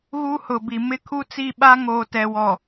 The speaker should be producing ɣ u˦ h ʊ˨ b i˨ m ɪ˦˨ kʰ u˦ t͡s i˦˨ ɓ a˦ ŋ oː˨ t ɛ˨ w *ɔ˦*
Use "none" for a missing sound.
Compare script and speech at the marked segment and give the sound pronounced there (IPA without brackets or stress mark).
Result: ɔ˨